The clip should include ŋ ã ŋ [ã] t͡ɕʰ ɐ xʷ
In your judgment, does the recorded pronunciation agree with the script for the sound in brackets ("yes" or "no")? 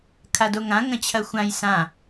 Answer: no